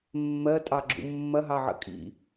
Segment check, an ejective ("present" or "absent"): present